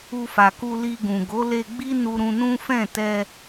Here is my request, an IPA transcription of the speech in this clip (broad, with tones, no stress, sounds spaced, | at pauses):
u˧ f a˨ k u˧ l i˧ ɡ ũ˨ ɡ o˨˦ l e˧ ɡ͡b i˦ n u˧ ɾ ũ˧ n ũ˦ f ɛ̃˦˨ t ɛ˧